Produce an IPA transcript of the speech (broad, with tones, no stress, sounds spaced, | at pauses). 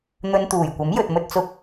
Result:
n̪ ɵ˧ n t̪ uː˨˩ j kʷ ɐ˨˥ m j ɵ˨ t̚ m ɵ˧ t̚ t͡s ʊ˧ k̚